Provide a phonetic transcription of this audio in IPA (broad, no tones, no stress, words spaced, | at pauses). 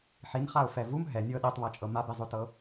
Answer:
ħinχaʊ̯fɛ vum ɦɛnʲɤ ɗitˤβɤt͡ʃʼɤ mabizˤotɤ